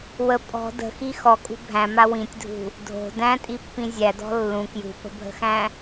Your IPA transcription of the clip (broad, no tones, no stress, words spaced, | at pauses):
wə pʼɔ̤ də̤xi xɔkʼṳ bʱæ̃ma wĩtʲdʱṳ | dʱo̤ dæ̃tʼipːĩ zʲædɔ̤ lːũ kjṳpə̤bʱə̤xæ̃